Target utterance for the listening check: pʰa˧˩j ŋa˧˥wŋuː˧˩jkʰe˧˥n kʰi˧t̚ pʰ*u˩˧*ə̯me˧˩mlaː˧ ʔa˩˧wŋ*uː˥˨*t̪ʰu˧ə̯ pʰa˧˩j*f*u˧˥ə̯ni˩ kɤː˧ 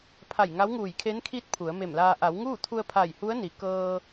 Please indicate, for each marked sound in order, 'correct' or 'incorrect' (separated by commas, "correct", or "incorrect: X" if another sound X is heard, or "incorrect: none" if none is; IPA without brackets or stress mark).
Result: correct, correct, incorrect: h